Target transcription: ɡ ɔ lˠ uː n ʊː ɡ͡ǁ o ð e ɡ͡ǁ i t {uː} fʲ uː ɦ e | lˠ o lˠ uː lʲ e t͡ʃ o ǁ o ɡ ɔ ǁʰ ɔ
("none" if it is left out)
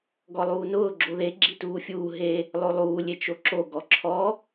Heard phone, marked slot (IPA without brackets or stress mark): uː